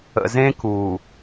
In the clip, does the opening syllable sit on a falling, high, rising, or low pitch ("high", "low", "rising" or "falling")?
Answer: low